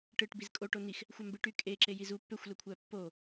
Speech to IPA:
ʈɯʈbiz kʼoʈo nix | xʷɑmbɯʈy kʼeǁe jizu pːøxʷløkʷʰæ pːo

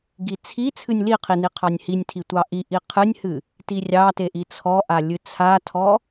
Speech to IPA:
ɡit͡sʰi t͡sʰɨnʲliqʰini qʰɑnʲhinʲtʰi tʷɑʔi ʔiqʰɨnʲhɨ | tirʲɑteʔi t͡sʰɔʔa lʲɨt͡sʰatʰɔ

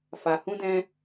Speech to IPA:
fa˨hũ˧dɛ̃˧

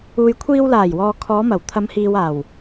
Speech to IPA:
uː˨jkʷʰiː˧wlaː˨˩j wɔː˨kʰɔː˨˧mɐ˨˩w t̪ʰɐ˨˧mhiː˨waː˨˩w

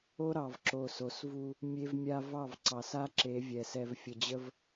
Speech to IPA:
o˦ɾɑ˨v ǁo˨so˨svu˦ | mʲe˦vmʲa˦ vɑ˦˨vǀɑ˨sa˦ ǁe˨˦vʲɛ˨ sɛ˨vfʲə˨d͡ʑə˦v

